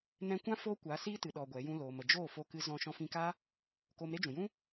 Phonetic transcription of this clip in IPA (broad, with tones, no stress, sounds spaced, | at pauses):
n ɛ̃˧ kʷ ã˦ f oː˦ kʷ a˨˦ s iː˦ t ɨ˨ ɗ ɔ˧ ɡʷ ɛ˨˦ j ũ˦ l oː˨ m ə˨ d͡ʒ oː˦˨ f o˧ k ɨ˧ z ɔ̃˧ ʃ ɔ̃˧ f ĩ˧ k a˦ | k o˧ m ɾ e˦ d͡ʒ ũ˨ j ũ˦